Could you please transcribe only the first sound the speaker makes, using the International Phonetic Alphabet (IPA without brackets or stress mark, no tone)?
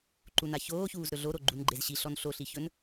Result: ǃ